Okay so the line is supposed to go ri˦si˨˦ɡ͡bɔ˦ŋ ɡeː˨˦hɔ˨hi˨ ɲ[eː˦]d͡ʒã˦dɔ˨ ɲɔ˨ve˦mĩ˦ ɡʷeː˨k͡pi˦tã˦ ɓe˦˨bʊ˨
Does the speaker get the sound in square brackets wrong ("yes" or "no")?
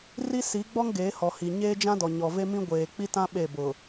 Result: no